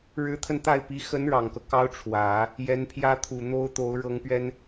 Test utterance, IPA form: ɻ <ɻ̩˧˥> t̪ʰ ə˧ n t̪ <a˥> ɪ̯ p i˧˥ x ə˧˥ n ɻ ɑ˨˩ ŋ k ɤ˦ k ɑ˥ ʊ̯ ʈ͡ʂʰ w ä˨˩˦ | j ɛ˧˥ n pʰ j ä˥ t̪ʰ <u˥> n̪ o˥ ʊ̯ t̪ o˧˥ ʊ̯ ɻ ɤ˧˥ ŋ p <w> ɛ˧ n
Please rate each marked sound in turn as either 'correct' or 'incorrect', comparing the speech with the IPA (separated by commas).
correct, incorrect, incorrect, incorrect